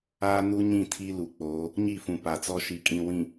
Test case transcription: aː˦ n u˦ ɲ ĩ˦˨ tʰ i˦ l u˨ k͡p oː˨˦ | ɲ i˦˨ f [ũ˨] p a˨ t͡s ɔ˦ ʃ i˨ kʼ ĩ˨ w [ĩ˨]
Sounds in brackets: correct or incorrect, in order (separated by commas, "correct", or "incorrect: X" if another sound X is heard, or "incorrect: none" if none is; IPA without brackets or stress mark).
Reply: correct, correct